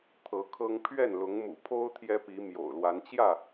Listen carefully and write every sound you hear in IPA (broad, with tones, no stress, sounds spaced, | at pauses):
t̪ʰ ɤ˨˦ kʰ ɤ˦ ŋ pʰ ɥ ɛ˥˨ n l ʊ˨˦ ŋ m ṵ˨˩ pʰ o˦ ʊ̯ t̪ʰ j ɛ˦ p i˨˦ m j o̰˨˩ ʊ̯ l w a˨˦ n t͡ɕ j ä˥˨